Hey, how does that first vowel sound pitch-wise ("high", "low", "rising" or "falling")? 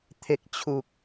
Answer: high